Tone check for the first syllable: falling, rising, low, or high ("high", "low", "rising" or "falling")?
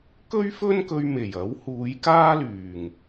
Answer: high